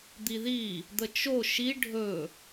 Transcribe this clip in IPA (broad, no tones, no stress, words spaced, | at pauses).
d̪iði | d̪ət͡ʃo ʃi ɖʱɵ